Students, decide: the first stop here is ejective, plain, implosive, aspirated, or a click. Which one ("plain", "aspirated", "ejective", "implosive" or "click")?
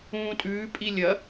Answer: ejective